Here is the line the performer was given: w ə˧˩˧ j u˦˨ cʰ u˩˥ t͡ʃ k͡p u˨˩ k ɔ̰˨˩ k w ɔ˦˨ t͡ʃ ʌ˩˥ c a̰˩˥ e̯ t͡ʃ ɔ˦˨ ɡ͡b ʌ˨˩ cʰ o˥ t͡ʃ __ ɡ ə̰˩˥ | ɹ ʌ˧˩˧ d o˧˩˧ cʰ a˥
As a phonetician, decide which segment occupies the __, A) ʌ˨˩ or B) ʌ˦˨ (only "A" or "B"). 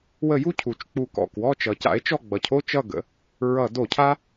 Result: B